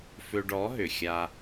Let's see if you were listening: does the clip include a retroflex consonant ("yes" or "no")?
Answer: yes